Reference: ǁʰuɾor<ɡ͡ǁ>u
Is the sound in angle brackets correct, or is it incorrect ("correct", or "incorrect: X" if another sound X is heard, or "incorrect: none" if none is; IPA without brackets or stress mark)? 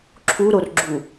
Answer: correct